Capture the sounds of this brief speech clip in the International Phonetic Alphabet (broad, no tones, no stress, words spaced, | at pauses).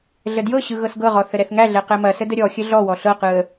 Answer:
ɮədjɤɕɯ ɣɤsɡɤʁɔ θəɾɛθŋæɮɛ qɛmɐsə dəɾʲɔxʲə ɮɔwɔ ɬɤqɯə̯